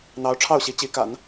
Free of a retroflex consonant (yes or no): no